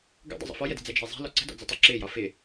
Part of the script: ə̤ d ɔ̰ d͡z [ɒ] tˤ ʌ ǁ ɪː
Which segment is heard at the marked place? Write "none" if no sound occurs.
ʌ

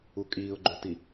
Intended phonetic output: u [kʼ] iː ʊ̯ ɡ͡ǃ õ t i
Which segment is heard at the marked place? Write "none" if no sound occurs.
kʼ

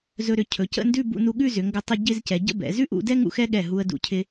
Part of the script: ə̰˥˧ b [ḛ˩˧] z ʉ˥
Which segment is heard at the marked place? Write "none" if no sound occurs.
ɛ̰˩˧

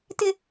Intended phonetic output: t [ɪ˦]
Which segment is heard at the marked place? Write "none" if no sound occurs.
ɪ˦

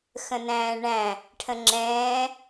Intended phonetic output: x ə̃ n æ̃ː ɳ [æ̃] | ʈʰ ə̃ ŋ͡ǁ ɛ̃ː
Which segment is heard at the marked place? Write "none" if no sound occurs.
æ̃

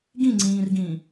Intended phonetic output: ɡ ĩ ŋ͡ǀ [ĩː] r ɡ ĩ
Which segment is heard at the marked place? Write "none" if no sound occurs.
ĩː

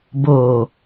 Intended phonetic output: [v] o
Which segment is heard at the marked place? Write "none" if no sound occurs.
b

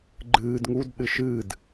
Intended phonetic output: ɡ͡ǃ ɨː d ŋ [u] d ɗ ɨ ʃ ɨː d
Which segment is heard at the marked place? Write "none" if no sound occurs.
u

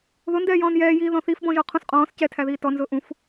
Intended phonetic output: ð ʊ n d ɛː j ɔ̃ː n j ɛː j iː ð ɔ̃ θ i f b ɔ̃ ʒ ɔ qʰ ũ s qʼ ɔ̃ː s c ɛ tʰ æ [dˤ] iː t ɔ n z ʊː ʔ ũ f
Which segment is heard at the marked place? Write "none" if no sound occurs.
ð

